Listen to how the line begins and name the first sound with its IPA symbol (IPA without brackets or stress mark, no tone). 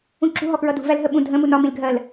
ũ